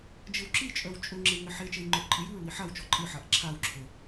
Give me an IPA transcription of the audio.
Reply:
d͡ʒ ɘ w ǁ i t͡ʃʼ œ w t͡ʃʼ ɵ ŋ͡ǁ e w ŋ ɘ ħ e t͡ʃ e j ŋ͡ǃ œ ʔ ǃʼ ɨ j ɨ ɹ w i ħ a w t͡ʃ ɔ ǃʼ ɨ ħ a ʔ ǁʰ a w ǁʰ ə

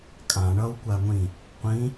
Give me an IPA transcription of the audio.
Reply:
kʼ ã ɳ ʌ w kʷ a ŋʷ ĩ | qʷ ĩ

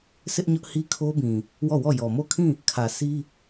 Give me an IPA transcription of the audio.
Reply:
s ɪ˦ ʔ ɲ ʊ˦ ʔ h i˦ kʰ o˦ b ĩ˨ | w ɔ˦˨ w ɔ˦˨ j ɔ˨ m o˦˨ kʰ ĩ˦˨ | kʰ ä˨ s i˦

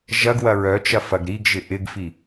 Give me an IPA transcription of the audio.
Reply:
ʒ ɐ ɡ w ɐ ɹ œ t͡ʃ ɐ f ɐ ɡ ɾ i ɡ ʒ ɪ ʔ ɪ ɡ f i

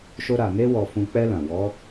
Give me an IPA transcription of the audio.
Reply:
ʃ o˧ ɾ a˨ n e˧ w ɔ˨ f ũ˨ k͡p ɛ˧ l ã˨ w ɔ˨˦

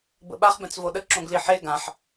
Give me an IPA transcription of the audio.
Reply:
b ə̰ ɓ a χ b ɛ̃ t͡s v o ɗ ə ǁ õ ɡ l i ħ e ɡ ã ħ

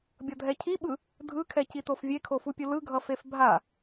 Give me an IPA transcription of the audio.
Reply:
bʲ ʌ dʱ ɛ cʰ i ɓ ɯ | dʱ ɯ kʰ ɛ c i t o f vʲ e kʰ o f u pʲ ɯ l ɯ ɡʱ ʌ f e f bʱ a

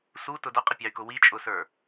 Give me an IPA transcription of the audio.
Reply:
s u t ʊ d ʌ qʼ ɪ pʲ ɑ y̯ k ʊ w i t͡ʃʼ ʊ s ə˞

